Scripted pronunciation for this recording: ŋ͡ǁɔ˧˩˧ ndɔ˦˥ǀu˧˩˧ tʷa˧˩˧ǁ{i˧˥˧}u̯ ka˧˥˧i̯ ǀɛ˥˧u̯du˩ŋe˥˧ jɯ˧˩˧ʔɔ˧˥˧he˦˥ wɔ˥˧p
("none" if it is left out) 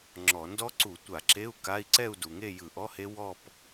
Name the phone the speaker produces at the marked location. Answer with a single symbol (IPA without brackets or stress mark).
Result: e˧˥˧